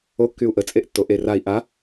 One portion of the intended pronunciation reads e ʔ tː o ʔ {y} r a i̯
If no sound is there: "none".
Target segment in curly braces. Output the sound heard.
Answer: e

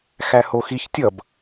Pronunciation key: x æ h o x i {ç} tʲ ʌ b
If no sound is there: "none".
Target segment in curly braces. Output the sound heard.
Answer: ç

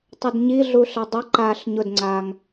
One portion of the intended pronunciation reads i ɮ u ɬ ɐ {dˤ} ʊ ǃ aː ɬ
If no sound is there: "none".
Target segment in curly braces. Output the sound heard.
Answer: dˤ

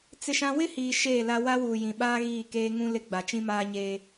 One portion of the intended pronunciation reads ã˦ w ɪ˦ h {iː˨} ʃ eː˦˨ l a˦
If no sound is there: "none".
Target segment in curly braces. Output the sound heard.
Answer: iː˨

